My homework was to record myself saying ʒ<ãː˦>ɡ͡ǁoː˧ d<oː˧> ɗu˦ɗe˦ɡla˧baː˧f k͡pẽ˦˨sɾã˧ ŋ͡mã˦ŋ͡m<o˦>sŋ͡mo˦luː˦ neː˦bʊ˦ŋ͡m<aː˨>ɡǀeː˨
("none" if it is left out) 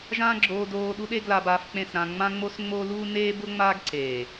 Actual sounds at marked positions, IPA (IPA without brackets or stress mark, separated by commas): ãː˦, oː˧, o˦, aː˦